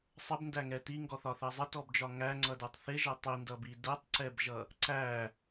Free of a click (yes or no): no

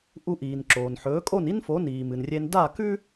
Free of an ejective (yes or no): no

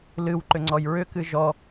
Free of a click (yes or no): no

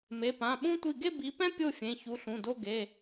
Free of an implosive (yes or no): no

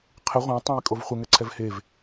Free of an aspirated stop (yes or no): no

